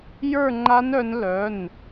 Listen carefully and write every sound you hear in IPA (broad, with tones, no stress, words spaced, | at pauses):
jə˞˥˧ŋ͡ǃa˦˥nœ˨˦n lœ˩˧˩n